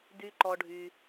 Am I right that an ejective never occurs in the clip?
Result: yes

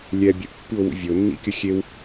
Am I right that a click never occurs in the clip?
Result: yes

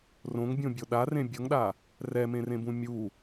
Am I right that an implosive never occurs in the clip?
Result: no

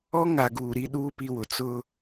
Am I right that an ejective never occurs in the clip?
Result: yes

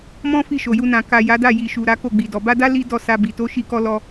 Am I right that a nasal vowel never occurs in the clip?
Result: no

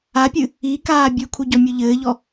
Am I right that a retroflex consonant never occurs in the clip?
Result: yes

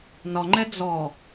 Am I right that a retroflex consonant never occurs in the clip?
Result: yes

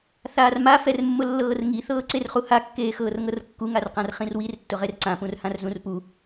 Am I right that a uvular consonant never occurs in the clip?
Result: no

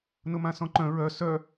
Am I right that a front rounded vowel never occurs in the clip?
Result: no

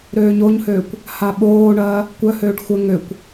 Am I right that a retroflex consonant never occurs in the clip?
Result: no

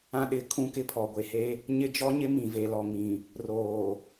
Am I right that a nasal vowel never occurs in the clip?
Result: no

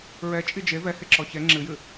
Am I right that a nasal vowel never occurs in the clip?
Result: yes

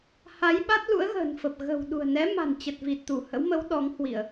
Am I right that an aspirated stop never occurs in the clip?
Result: yes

